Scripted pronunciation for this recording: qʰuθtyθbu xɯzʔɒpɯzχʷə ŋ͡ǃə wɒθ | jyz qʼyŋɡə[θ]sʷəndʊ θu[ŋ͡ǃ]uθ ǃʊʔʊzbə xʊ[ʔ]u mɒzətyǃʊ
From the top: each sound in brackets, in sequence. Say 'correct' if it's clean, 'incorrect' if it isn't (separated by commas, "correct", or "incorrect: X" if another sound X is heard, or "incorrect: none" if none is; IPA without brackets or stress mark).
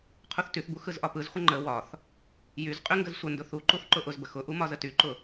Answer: incorrect: z, incorrect: ǃ, correct